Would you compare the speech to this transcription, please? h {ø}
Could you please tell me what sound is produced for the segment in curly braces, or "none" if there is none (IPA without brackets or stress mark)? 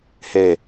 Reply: e